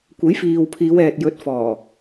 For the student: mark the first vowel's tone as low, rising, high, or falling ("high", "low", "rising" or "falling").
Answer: rising